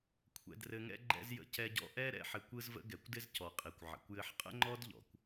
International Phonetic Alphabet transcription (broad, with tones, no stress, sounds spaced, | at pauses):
kʷʰ ɛ̰˧ d r ɘ˧ ŋ ɛ̰˦ ɡ͡ǃ ɛ̰˦ z j ə̰˧ c ɛ˧ ɟ ɔ̰˧ ʔ ɛ˦ ɾ ɛ̰˦˨ ħ ɘ˧ kʷ ɯ˦ z v ə̰˦ ɡ ɛ˨ kʷ d ɪ˦ z c ɔ˨ qʼ i˨ kʷ ʕ ə̰˨ kʷ j ɘ˦ ħ qʼ ə̰˦ ŋ͡ǃ ɔ˦ d ʎ ɔ̰˨ kʷ